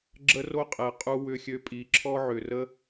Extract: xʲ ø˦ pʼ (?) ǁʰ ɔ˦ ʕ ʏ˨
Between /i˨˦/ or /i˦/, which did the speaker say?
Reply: i˨˦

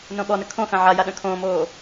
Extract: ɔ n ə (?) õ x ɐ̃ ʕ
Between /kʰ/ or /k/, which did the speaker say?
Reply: kʰ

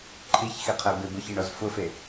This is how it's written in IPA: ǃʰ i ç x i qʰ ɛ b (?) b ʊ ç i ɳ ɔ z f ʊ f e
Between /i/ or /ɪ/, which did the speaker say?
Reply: ɪ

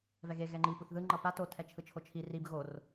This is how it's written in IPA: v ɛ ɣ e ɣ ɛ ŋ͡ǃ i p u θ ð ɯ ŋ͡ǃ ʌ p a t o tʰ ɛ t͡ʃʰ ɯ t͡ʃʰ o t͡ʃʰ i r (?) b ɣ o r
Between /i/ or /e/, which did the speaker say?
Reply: i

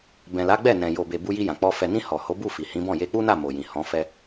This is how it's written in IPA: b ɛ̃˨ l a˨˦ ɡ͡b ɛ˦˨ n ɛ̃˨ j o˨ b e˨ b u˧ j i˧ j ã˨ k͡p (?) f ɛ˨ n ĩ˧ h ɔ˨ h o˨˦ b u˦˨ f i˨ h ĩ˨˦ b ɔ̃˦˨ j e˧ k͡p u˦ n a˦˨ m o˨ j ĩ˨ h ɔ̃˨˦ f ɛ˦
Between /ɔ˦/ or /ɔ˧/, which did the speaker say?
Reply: ɔ˧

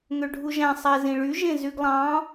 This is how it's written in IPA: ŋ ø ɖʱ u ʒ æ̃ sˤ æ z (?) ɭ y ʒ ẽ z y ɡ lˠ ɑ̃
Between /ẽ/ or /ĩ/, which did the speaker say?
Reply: ĩ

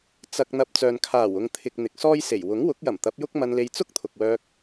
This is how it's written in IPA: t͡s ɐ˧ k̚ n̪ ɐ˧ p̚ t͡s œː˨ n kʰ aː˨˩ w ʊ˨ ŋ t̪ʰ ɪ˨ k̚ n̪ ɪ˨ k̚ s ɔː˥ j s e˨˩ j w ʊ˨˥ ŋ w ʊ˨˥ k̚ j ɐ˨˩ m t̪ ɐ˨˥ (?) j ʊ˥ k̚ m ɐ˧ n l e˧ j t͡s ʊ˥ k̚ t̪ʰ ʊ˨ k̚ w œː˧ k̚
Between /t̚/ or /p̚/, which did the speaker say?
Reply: p̚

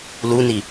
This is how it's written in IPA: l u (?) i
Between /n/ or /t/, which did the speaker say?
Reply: n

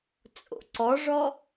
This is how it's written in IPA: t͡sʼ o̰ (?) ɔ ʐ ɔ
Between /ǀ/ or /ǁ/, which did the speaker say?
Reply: ǀ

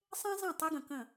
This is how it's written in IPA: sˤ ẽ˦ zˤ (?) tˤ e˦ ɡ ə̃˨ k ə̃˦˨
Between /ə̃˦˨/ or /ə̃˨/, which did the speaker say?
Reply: ə̃˦˨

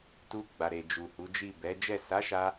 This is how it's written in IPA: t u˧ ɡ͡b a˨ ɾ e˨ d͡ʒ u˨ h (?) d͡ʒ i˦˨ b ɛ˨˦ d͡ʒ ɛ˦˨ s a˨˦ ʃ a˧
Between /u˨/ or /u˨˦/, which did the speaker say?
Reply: u˨˦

